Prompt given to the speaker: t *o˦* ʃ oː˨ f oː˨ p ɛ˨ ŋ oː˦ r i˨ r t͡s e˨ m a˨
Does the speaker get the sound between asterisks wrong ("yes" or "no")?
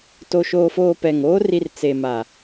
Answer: yes